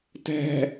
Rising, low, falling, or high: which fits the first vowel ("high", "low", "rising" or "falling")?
low